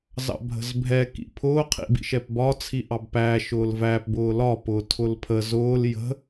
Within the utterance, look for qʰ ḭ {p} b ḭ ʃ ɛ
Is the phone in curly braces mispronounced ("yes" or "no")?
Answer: yes